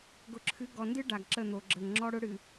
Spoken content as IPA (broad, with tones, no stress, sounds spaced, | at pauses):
ɡ ʊ˨ ǁʰ ɨ˨˦ ɡ ɔ˨ n d ɨ˦ ɖ a˨ ɡ ǁ ə˦˨ n̪ o˨ ɡ͡ǁ ə˨ ŋ ŋ͡ǁ ɔ˦ ɽ ʊ˦ ɽ ɨ˨